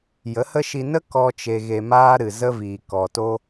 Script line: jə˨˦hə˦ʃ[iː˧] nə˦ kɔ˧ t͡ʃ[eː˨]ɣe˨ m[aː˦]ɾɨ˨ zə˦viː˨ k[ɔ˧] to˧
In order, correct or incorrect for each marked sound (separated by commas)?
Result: incorrect, incorrect, correct, incorrect